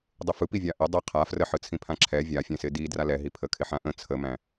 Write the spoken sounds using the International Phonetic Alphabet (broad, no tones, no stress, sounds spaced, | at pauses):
dˤ ɪ f ɯ p i vʲ a ʔ ɪ dˤ ɪ qʰ a f r ə ħ ɯ t͡sʰ ĩ pʰ ã ǁʰ ɛ vʲ a fʲ ɛ̃ s ɪ d i d r a l ɛ ɦ i pʰ ə kʰ ɪ ħ ã ʔ ə̃ t͡sʰ ə m æ̃